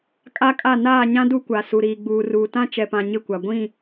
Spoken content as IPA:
kʼa˦kʼa˦˨ naː˦˨ɲã˦ du˦kʷa˨ su˨ɾiː˨ɡ͡buː˨ruː˨ tã˦t͡ʃɛ˨pã˨ ɲɪ˦˨kʷa˨ ɡʷĩ˦˨

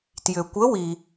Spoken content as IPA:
tjʏ˨kʷə˧˥wi˨

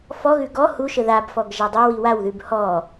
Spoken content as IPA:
fɔɣʉ ɡɔ huʃə ðabfɔɡ ʒadˤowi wawðʉb hɔ

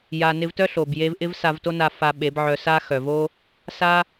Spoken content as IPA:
ja˨ nɪ˧vtœ˦ɬo˨bje˧v ʔɪ˦vsa˧vto˦na˧ fa˧ ɓe˨˦bʕœ˧sa˦ xœ˨vo˦ | sa˧

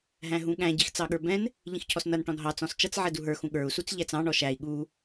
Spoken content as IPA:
ɦæ̃ɦũɠæ̃ ɟixt͡sɑɠə˞bɛ̃n | ʎĩxcʰɔsnʌn ʈɔ̃nɦɑ t͡sɔ̃st͡ʃʌt͡s ʕɛduɦə˞ xũɠə˞u̯ sut͡sʎæt͡sɑ̃ ɳɔʃæi̯ ɠu

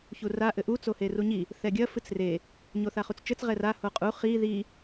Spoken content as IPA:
çura ʔɘʔu t͡soheruɲi | θɛɡʲɐ fɨt͡sre | ɲoθaχut͡st͡ʃɘt͡s ʁɛra hoqʼu χi ði

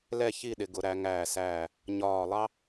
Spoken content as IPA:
lɛ˥˧ çi˥˧ɗɪ˩˧ɡʊ˩˧ɾæ˩˧ ŋæː˧˩sæː˧˩ | ɲɒː˧˩lˠɑ˥

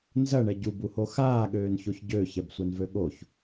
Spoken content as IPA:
nzɐɳɛ ɟubuho xaːɠøːnçoç ɟøːçɛbsʷɛnvø ɠoç

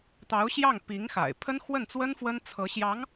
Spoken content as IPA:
t̪ɑ˧˥ʊ̯ɕjɑ˥˩ŋ pi˧˥ŋxa̰˨˩ɪ̯ pʰə˥nxwə˥˩nt͡swə˥n fwə˥nt͡sʰɤ˧˥ ɕjɑ˧˥ŋ

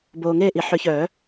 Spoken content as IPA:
boː˨ŋeː˥˨ʔi˩˥ ħʏ˨˩˦çœː˨˩˦

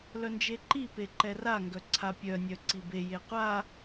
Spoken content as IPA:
lœnd͡ʒeǃipe ǃɛraŋɡœ ǀʰapʲœnʲœ ǀibeje qʷa

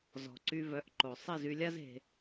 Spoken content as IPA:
zɔ̤˨ǀy˧vœ˨˦ʔǃo˨ sˤi˦˨zy˧lʲa˦z e̤˧

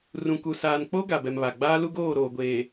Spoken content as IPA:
rũ˨ku˨ saː˨nk͡po˦ ɡa˨bɛ˨mβa˨ ɡ͡baː˦lu˦ɡoː˦˨ ɾoː˨ɡʷeː˨

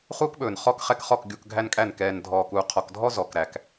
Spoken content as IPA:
χuː˦kɓɵː˨n χɔ˦kχɛ˦kχɔ˦˨k ɡʲu˨k ɡʱæ˦nkʼæ˦˨n kɛː˨n dʱɔː˨kuː˨qʰɔ˨kdʱɔ˦ zɔ˨kɾæ˨k

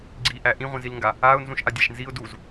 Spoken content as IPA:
ɡ͡ǀiʔæ ʔĩʁʷĩzilŋɡa | aʊ̯nzũʃ ʔadʲæʃnziʊ̯ duz

